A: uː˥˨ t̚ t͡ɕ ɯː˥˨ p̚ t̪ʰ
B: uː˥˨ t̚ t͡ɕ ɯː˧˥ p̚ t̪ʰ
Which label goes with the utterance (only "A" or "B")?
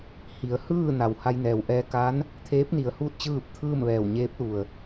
A